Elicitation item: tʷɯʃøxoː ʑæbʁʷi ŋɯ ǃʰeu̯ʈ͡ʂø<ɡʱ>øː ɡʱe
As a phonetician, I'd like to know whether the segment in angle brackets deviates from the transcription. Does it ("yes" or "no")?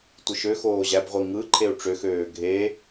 yes